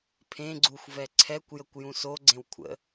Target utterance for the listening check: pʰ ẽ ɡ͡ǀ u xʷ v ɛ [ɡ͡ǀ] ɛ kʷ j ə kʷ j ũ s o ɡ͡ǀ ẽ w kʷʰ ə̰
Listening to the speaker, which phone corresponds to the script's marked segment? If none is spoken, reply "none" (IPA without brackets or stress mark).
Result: ǀʰ